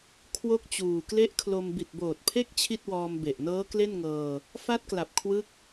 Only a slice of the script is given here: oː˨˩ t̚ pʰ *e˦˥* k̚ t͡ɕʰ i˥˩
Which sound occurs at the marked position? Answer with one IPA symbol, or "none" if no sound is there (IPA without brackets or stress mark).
e˦˥